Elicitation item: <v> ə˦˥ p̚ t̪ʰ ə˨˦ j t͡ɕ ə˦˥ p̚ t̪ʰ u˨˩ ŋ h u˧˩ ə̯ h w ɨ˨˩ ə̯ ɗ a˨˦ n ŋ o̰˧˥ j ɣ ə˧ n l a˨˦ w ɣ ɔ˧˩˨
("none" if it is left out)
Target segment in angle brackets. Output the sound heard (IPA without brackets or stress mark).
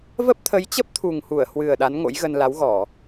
v